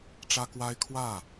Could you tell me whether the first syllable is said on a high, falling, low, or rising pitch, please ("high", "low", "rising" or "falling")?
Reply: high